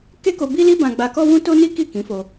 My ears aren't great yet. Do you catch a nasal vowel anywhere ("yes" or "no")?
yes